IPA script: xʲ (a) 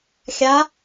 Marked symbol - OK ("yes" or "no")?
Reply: yes